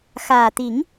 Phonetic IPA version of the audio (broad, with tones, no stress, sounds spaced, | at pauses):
x aː˨˩ t̪ i˨˩˦ ŋ